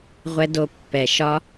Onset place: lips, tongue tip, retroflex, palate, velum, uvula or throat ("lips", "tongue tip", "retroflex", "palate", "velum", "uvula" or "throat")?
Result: uvula